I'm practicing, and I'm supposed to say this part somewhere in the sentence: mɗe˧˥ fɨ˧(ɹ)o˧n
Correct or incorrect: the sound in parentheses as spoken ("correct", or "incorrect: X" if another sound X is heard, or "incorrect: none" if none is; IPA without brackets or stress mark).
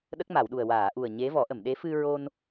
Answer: correct